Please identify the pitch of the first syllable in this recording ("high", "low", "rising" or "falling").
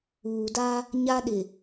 low